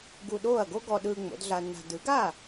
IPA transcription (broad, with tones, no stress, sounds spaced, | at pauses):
ɡ u˧ ɗ oː˥˩ ɐ̯ ɡ o˥ ɡ ɔ˧ ɗ ɯː˧ ŋ͡m o̰˩˥ d ɮ a˧ nː a̤˧ d ɯ˩˥ ɡ aː˥˩